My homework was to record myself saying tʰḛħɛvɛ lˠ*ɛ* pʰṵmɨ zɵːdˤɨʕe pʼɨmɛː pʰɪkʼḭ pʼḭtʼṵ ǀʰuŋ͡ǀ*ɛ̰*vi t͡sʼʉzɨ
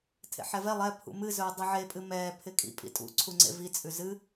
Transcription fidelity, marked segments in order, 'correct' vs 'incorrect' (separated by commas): correct, incorrect